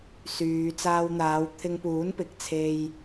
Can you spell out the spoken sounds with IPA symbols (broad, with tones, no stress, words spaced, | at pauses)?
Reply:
syː˨t͡saː˧wn̪aː˨˧w t̪ʰɪ˧ŋpuː˨˥npɪ˨k̚t͡sʰe˧j